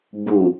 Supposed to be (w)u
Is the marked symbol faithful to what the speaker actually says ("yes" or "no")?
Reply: no